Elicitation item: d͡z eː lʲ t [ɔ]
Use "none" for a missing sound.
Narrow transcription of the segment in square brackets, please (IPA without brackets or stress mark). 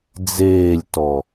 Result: ɔ